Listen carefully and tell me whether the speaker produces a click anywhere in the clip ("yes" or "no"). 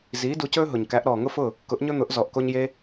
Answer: no